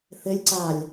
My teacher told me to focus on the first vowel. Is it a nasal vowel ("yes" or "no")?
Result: no